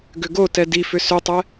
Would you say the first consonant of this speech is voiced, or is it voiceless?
voiced